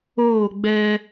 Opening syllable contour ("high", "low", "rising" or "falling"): falling